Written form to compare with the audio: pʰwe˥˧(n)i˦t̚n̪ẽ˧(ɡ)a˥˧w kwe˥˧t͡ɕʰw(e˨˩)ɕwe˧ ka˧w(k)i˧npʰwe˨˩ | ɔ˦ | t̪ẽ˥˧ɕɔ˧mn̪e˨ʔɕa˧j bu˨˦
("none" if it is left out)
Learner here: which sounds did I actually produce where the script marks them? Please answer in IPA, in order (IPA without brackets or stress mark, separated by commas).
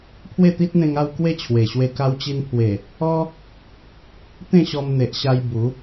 t̪, ŋ, e˨˩, t͡ɕ